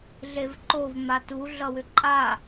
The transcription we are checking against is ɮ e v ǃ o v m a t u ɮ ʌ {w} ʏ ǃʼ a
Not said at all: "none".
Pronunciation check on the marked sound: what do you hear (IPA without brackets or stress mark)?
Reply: w